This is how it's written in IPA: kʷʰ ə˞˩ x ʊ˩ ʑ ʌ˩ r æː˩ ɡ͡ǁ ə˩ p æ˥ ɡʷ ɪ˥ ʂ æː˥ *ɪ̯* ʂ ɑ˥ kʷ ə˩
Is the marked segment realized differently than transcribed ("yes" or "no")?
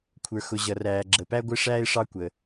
no